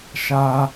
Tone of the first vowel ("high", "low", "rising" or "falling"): high